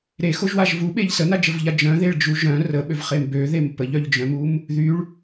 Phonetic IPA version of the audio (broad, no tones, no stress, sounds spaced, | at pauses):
ɾ e x o ʒ w a ʒ v u ɓ e ʎ s ə n a d͡ʒ ə v ʎ a d͡ʒ œ̃ ð e ɭ d͡ʒ u ʒ œ̃ r ə ɓ ø v χ e m b ø ð e m p ə ʎ œ ʎ d͡ʒ œ̃ m u m | ð y ɭ